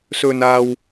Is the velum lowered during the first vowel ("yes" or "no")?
no